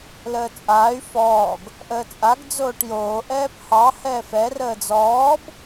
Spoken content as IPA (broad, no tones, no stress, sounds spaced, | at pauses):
l əː t͡sʼ aː y̯ f ɔː ɡ | ʔ əː t͡sʼ a ɡ d͡z oː ʈ j oː ʔ ɛː p h ɑ h ɛː f ɛ r əː d͡z ɔː b